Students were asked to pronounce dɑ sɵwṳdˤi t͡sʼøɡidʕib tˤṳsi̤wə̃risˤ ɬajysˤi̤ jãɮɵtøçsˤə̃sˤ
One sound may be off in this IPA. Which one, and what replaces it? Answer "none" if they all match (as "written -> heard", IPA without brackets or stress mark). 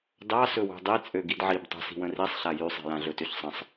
none